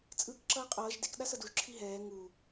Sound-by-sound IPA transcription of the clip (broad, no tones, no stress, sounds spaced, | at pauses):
t͡sʼ ɯː k ǁ ʌː qʼ ʌː ʒ d e k ɗ a s ʌ d u ʒ ǁʰ i ɦ ɛː ŋ u